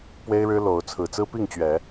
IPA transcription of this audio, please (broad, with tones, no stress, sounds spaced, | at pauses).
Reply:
p w e˦ ɪ̯ ɻ ɻ̩˦ l o˨˦ ʊ̯ t͡sʰ ɹ̩˨˩ t͡s ɹ̩˦ p i˥˨ ŋ t͡ɕ ɥ ɛ˨˦